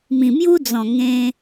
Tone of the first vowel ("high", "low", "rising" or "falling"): low